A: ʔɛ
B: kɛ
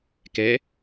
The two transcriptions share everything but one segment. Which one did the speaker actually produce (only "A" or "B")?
B